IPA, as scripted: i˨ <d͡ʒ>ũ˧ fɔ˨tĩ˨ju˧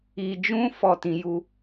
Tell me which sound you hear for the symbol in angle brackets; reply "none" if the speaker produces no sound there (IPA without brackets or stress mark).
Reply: d͡ʒ